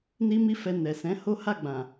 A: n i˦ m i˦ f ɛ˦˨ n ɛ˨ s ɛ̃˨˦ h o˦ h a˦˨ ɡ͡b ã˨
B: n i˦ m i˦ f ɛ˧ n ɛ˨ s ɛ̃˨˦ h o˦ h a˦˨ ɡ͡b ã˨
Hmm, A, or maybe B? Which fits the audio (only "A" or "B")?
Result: B